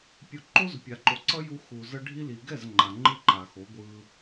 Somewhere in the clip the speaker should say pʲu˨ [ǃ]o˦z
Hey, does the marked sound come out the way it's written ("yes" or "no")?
yes